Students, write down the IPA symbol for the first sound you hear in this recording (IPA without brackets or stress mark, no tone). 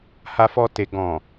h